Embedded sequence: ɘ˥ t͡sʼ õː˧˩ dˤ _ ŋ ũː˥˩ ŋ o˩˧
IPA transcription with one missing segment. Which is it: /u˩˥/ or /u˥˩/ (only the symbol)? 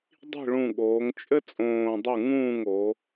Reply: u˥˩